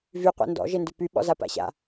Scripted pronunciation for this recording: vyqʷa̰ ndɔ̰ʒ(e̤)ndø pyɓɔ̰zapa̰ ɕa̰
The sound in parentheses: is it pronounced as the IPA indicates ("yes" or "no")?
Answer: no